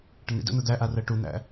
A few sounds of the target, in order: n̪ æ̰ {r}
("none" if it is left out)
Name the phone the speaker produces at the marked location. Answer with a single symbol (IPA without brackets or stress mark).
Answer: none